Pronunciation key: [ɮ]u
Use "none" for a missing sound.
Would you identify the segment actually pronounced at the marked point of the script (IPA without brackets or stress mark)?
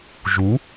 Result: ʒ